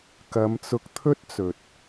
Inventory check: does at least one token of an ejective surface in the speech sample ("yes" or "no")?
no